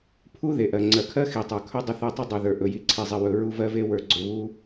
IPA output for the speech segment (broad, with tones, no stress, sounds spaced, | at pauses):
pʰ u˦ ð e˨ ʔ ɜ˨ ŋ͡ǀ ɜ˨ kʰ ɜ˦ x i˨ tˤ ə˞˨ kʰ ɵ˦ dˤ ɪ˦ θ ɜ˦ tˤ u˦ dˤ u˨ ð ə˞˨ ʔ ɵ˨ j i˨ ǀʰ e˨ zˤ ɪ˨ w ɵ˨ ɹ u˦ v ɜ˦ v e˦ w ə˞˨ ɡ͡ǀ ɵ˨ β u˦